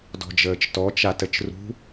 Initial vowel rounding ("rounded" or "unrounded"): rounded